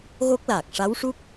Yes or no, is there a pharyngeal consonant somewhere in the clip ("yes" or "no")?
no